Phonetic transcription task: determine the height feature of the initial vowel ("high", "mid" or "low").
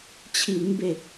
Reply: high